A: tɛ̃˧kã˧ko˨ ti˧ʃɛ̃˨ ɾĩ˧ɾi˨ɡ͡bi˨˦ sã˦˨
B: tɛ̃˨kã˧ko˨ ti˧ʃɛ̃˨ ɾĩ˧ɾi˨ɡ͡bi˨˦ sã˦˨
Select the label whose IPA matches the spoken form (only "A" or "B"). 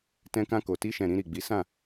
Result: A